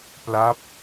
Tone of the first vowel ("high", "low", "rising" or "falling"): falling